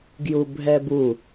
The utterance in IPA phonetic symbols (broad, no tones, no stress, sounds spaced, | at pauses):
ɡ j u bʱ ɛ b u